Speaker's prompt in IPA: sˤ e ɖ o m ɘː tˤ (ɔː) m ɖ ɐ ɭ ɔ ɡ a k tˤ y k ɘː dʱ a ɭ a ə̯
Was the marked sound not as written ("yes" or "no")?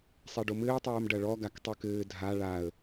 yes